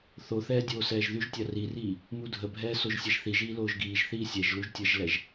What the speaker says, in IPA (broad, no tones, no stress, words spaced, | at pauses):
θoθɛː dʲoːsɛːʒðyʒtʲa ririː | mudʱəbʱɛː soʒsʲɛʒθiʒiː loːʒɡiːʒθiː sʲɛʒluʒ tʲəʒlɛʒ